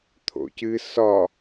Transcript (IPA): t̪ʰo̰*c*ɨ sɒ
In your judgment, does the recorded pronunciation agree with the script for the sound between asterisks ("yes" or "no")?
yes